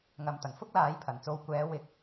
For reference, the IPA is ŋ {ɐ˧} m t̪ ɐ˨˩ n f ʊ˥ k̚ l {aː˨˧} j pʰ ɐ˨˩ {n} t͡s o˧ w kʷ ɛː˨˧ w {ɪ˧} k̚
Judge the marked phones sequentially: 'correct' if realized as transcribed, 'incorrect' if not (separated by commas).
incorrect, correct, correct, correct